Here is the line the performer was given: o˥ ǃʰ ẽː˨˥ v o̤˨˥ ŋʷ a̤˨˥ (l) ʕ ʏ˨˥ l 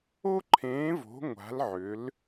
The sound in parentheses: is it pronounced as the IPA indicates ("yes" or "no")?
yes